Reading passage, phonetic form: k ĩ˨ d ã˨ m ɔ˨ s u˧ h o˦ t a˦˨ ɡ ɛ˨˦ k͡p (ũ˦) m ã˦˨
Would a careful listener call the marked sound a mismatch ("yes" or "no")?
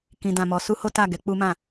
yes